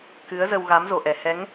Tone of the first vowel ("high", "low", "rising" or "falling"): rising